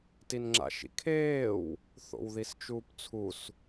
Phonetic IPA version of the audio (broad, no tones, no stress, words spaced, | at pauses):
tinŋ͡ǁa̰ʃḭkʰeːw | θo̰wðist͡ʃuːpt͡sʰus